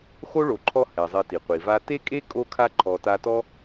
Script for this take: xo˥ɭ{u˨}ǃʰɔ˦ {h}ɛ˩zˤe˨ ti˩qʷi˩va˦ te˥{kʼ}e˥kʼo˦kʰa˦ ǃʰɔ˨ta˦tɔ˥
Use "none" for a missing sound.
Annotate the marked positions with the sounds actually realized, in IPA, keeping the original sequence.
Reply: o˨, h, kʼ

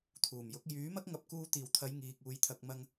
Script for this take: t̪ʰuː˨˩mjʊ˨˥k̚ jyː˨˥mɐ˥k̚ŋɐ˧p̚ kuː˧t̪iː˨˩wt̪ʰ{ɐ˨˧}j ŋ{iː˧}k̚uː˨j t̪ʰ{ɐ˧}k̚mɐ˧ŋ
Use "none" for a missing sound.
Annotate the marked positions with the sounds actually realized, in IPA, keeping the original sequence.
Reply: ɐ˨˧, iː˨, ɐ˨

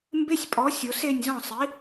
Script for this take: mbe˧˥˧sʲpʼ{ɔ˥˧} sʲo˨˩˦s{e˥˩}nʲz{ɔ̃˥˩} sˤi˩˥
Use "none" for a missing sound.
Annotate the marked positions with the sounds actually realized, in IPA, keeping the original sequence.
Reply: ɔ˩˥, e˥˩, ɔ̃˥˩

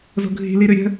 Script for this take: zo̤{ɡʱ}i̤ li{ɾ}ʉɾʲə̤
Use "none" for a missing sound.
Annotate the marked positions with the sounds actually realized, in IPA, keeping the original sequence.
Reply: ɡʱ, ɾ

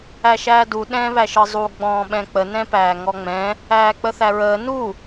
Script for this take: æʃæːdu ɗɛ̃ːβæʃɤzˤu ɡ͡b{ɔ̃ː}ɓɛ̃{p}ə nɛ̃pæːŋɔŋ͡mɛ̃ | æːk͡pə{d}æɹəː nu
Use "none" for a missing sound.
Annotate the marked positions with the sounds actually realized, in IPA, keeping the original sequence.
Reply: ɔ̃ː, k͡p, θ

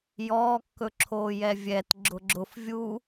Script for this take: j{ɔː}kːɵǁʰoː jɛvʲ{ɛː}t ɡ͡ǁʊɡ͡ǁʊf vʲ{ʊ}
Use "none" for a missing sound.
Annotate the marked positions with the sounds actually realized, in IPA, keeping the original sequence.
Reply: ɔː, ɛ, u

